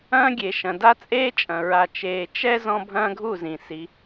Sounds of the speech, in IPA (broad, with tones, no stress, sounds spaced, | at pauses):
ɐ̃ː˦ ɡʲ e˨ ʃ ɐ̃˨ d a˦ t͡sʼ eː˦ t͡ʃʼ ɐ̃˨ ɹ a˨ t͡ʃ eː˨ t͡ʃ ɛ˦ z ɔ̃˦ bʱ ɐ̃ː˦ ɡʱ u˦˨ z ĩ˨ s i˨˦